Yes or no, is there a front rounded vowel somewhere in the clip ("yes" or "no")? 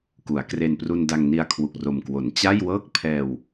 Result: no